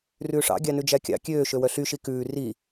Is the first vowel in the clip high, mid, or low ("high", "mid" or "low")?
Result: high